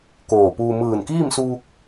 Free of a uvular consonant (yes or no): yes